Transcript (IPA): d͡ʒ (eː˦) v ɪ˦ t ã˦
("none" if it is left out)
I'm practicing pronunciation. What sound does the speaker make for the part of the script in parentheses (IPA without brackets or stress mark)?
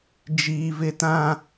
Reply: iː˦